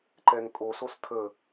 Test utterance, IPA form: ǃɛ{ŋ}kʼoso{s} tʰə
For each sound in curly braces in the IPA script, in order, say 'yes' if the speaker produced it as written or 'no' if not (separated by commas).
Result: yes, yes